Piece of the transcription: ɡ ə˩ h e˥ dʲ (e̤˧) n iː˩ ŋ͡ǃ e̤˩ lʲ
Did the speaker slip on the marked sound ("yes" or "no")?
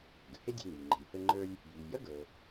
no